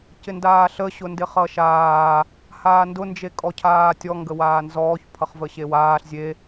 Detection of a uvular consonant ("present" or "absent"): present